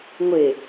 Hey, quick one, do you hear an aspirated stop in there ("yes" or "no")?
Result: no